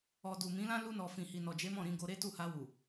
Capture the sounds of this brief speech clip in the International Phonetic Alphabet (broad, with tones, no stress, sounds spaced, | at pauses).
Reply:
ɔ˨ d u˨ m ĩ˨˦ l ã˦ l u˧ n ɔ˨ f ĩ˨ h i˨ n ɔ˨ d͡ʒ e˨˦ m ɔ̃˦˨ ɾ ĩ˨˦ ɡ o˧ ɾ e˦ t u˦˨ h a˧ w u˨